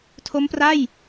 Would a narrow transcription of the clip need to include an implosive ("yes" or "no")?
no